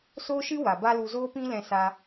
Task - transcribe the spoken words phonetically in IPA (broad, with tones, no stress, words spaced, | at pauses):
soː˦ʃɨ˦ wa˨ba˦lu˧ zoː˦pĩ˦lɛ̃˧sa˧